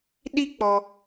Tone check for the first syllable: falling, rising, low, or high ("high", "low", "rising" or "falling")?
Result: high